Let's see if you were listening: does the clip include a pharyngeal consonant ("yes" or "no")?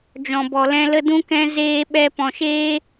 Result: no